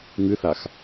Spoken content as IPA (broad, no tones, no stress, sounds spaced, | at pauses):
ŋ ɨ θ a x